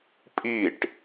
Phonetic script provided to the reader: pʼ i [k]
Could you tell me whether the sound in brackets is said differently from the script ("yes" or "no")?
yes